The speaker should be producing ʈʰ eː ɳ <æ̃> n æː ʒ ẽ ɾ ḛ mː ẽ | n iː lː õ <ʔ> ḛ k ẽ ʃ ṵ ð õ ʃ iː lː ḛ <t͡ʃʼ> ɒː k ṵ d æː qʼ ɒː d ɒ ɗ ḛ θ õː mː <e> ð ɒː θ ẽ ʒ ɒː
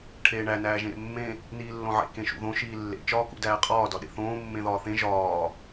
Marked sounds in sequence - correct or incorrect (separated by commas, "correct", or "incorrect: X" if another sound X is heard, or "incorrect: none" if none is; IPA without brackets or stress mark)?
incorrect: æ, incorrect: ʕ, incorrect: t͡ʃ, incorrect: ẽ